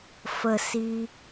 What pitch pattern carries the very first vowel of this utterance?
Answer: low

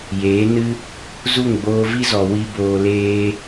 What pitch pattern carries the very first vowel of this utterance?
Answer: rising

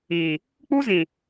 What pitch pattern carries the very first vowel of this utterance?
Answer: low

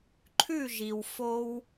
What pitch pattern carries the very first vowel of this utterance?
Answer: falling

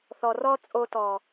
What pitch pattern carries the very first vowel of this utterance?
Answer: low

